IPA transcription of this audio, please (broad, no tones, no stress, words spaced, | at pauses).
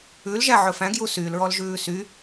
ʉlʒæ ʕɵfæ̃ɡju syːlɹɔlʒʉː sy